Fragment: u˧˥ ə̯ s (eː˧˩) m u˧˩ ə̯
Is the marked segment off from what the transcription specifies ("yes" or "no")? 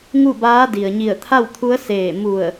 no